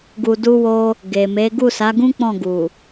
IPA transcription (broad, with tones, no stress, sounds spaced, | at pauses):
ɡ u˧ d u˦ w o˦ | ɡ e˨ m e˨˦ ɡ u˦˨ s a˨˦ ɡ ũ˦ k͡p ɔ̃˦˨ ɡ u˨